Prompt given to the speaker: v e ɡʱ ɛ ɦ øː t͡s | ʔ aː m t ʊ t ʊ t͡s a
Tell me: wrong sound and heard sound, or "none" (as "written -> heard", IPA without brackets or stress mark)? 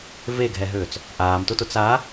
none